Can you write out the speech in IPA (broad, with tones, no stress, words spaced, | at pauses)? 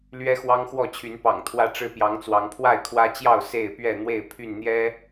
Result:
lɥɛ˦xwɑ˦ŋxwɔ˥˨t͡ɕʰy˨˦n pɑ̰˨˩ŋt̪ʰwä˦ ʈ͡ʂɻ̩˦ pjɑ˨˦ŋt͡swɑ˨˦ŋ pʰwa˥˨ɪ̯kʰwä˦t͡ɕjɑ˥˨ʊ̯ se˥˨ɪ̯pɥɛ˥˨ n̪we˥˨ɪ̯pʰy˥˨nn̪jɛ˦